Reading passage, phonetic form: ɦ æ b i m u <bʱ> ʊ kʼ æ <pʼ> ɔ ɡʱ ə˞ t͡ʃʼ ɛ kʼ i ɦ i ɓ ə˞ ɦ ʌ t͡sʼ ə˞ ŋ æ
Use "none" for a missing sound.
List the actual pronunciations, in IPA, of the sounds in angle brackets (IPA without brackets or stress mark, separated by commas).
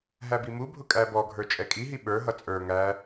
bʱ, b